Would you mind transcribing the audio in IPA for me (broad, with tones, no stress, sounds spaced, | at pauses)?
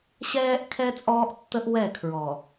ɕ ɛː˦ ʔ kʰ ɛ˦ t͡sʼ ɔː˦ ʔ tː ə˦ ʔ w ɛ˦˨ kʰ ɹ ɔ˨